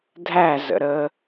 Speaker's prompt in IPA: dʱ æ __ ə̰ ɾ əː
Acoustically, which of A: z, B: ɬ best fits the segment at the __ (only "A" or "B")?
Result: A